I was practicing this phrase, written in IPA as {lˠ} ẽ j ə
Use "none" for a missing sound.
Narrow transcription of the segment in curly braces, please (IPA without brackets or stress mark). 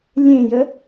lʲ